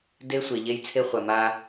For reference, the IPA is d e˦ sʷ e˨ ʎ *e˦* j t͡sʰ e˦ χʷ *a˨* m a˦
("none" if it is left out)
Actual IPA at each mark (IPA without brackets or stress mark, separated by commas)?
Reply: e˦, a˨